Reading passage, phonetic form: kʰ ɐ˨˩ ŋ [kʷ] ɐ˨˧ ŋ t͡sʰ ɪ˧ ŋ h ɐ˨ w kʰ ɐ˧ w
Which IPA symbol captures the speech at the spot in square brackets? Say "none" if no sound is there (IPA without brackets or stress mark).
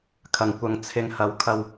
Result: kʷ